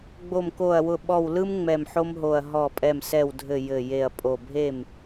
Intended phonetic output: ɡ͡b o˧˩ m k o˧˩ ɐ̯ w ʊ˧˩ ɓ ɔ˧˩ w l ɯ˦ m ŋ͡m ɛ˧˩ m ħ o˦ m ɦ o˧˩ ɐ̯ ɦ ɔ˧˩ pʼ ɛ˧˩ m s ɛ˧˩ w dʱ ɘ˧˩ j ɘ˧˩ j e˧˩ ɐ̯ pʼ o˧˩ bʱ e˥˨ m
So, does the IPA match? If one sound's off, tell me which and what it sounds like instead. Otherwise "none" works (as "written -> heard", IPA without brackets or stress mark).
none